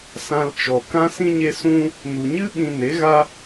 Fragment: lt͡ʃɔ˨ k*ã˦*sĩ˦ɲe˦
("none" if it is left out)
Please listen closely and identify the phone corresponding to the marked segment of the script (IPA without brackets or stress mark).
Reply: ã˦